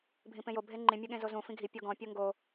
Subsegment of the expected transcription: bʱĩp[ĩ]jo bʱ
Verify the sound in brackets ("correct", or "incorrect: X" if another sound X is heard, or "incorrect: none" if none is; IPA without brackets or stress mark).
incorrect: ẽ